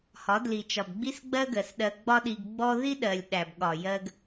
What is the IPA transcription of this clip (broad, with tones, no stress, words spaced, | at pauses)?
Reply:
hɒ˨˦dli˨t͡ʃɒ˨b ɡ͡bi˦sɡ͡bɜ˦ ɡɜ˨sɗɜ˧ ɡ͡bɒ˦ɗi˧ɡɡ͡bɔ˦ ði˦ɗɜ˨lʲ ɗæ˨bɠɒ˨ jɜ˧ɡ